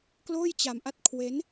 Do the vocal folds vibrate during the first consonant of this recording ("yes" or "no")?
no